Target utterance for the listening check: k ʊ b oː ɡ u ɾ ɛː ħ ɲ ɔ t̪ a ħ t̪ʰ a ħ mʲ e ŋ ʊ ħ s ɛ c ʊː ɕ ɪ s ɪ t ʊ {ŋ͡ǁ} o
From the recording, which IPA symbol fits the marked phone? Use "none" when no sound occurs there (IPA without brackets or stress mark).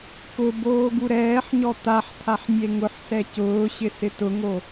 ŋ